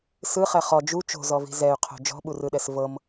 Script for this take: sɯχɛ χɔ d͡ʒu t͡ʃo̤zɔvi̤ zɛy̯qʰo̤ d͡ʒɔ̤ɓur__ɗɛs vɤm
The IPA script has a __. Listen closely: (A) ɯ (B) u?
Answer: A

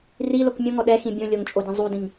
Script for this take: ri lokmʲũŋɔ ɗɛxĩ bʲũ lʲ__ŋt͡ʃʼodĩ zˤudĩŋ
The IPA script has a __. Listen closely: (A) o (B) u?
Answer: A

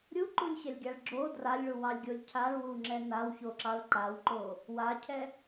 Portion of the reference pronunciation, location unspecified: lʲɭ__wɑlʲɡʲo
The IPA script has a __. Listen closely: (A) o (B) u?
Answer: B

